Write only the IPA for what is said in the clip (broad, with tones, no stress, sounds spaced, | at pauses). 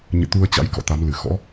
ɲ ɨ̰˧˨ t̪ u˧ ə̯ t͡ɕ a̰˧˥ j k ɔ̰˧˨ t̪ a˨˦ m l ɨ˧˩ x ɔ̰˧˥